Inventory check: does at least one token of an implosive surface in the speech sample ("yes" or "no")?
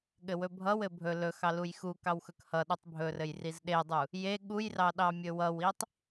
yes